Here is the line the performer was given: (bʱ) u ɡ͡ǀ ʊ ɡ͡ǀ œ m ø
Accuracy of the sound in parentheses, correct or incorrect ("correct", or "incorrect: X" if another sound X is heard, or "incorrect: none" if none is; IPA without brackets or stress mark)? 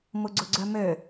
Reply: incorrect: m